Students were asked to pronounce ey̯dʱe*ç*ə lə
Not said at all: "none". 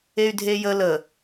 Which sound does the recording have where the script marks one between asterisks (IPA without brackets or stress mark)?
j